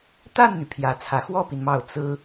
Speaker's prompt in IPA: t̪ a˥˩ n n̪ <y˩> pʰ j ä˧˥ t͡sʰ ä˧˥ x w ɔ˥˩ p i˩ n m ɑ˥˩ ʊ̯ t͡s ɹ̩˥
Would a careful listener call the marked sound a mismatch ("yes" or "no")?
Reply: no